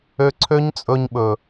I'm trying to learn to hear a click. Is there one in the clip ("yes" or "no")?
yes